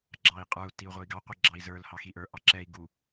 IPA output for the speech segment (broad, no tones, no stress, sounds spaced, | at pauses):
ɡ͡ǁ ɑ i̯ qʼ ə˞ u̯ t i u̯ ʁʷ ə˞ i̯ ɡ ɑ qʷ ə˞ ɡ͡ǁ ɑ i̯ z ə˞ l h ɑ x i ʔ ə˞ ʔ ɑ ǁ ɛ i̯ ɡ u